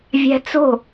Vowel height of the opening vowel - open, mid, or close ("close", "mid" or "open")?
open